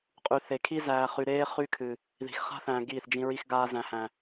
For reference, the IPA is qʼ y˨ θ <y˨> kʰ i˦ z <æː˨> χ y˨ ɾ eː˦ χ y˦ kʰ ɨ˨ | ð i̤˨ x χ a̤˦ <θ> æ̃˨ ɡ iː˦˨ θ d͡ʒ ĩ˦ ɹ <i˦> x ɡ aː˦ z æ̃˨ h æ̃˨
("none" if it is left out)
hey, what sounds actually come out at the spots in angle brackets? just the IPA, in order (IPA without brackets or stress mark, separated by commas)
e˨, æː˨, θ, i˦